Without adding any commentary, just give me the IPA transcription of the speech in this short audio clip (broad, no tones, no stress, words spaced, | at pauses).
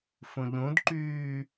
fũʎũdǃyː